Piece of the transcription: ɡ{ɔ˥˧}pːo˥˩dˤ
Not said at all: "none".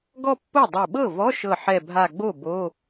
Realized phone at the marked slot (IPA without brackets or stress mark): ɔ˥˧